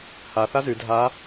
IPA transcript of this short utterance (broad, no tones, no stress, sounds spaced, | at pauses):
h a θ a z y dʱ a